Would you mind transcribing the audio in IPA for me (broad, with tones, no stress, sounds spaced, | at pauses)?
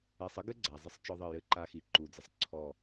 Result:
ɛ˨ sˤ ə˦ ɡ ɘ˦ ɡ͡ǀ a˨ zˤ ə˦ sˤ t͡ʃ ɔ˦ ðˤ ə˦˨ j ɘ˦ ǃ a˦ x i˨ ǃ u˨ d͡z ə˨ sˤ ǀʰ ɔ˦˨